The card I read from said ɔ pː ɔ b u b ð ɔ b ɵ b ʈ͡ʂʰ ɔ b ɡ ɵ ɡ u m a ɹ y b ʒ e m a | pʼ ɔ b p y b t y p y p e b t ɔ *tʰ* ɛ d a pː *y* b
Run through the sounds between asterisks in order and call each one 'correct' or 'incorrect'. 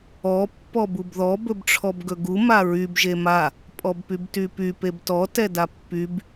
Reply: incorrect: t, correct

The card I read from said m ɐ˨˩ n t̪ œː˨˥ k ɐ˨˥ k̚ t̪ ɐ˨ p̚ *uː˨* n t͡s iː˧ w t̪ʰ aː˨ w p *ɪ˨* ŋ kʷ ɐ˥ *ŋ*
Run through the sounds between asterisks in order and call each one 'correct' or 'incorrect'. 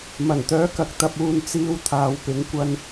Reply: correct, incorrect: ɪ˨˥, incorrect: n

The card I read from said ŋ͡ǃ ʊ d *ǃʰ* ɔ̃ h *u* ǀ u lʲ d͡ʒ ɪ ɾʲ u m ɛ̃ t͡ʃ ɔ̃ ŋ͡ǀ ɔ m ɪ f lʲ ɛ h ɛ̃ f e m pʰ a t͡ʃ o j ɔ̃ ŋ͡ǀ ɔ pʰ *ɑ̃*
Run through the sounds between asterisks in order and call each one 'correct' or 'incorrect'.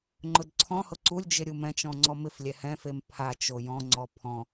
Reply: incorrect: ǀʰ, incorrect: ʊ, incorrect: ɔ̃

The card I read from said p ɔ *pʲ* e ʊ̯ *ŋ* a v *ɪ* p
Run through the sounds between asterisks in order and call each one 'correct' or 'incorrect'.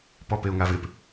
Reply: incorrect: p, correct, correct

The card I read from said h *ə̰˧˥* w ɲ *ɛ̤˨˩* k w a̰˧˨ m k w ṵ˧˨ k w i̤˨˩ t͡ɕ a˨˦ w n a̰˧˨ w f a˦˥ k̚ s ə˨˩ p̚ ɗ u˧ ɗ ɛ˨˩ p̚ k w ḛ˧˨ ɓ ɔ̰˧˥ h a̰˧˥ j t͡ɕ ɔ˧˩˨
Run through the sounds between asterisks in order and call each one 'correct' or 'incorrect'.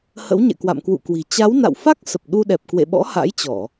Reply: correct, incorrect: ɛ̰˧˨

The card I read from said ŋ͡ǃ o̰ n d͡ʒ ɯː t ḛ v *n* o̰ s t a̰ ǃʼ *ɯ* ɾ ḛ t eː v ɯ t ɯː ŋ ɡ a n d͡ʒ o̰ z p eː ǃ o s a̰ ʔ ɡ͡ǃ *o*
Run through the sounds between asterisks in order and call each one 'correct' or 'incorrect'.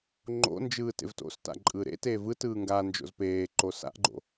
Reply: incorrect: t, incorrect: ɯː, incorrect: o̰

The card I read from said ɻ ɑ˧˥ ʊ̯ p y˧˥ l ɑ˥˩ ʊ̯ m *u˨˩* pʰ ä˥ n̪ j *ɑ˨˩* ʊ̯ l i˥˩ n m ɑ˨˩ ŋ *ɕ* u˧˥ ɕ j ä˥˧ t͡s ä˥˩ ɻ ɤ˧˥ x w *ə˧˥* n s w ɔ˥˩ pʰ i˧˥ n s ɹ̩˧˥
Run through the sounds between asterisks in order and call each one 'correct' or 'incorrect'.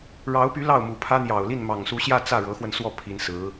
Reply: correct, correct, incorrect: s, incorrect: ə˧

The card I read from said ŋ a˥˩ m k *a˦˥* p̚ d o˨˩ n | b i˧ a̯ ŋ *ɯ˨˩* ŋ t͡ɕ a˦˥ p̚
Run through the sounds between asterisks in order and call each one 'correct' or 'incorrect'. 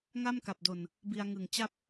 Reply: incorrect: a˨˩, correct

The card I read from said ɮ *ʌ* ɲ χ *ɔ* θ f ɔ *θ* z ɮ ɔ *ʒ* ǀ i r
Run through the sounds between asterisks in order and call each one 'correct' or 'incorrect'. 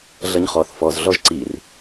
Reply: correct, correct, incorrect: none, correct

